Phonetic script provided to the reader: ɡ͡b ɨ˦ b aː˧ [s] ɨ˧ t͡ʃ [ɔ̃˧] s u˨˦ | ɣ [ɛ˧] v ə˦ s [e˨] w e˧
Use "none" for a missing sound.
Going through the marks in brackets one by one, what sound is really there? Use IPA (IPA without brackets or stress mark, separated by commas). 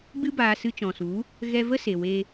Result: s, ɔ̃˨, ɛ˧, e˨